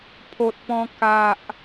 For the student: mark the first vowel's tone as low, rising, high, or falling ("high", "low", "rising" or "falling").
low